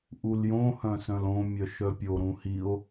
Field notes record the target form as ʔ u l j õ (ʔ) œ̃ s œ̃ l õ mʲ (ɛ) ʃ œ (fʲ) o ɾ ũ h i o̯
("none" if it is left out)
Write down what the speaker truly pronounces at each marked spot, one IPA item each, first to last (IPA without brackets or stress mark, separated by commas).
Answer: h, œ, pʲ